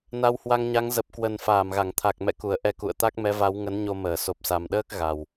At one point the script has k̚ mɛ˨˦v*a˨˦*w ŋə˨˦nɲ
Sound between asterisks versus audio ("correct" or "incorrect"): correct